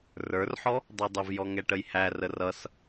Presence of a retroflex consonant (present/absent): present